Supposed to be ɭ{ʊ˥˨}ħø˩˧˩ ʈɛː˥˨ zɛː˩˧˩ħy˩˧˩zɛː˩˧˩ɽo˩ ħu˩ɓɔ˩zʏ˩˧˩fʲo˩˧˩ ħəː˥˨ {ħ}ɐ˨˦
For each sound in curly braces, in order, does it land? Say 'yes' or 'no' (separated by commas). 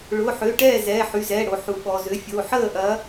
no, no